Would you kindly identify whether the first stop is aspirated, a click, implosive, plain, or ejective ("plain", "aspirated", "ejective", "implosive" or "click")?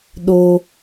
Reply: implosive